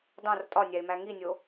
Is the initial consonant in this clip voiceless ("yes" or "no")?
no